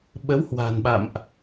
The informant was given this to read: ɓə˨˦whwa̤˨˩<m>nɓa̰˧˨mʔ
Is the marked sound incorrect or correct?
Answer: incorrect